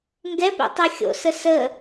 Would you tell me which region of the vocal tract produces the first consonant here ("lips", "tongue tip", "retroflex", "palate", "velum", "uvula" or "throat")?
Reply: velum